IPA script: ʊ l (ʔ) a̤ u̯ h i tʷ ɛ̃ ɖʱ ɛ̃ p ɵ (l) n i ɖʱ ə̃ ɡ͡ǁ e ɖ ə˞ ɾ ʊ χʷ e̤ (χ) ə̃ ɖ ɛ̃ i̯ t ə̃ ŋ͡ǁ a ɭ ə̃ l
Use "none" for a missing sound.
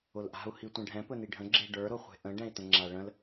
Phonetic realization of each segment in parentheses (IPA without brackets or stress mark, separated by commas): ʔ, none, ʔ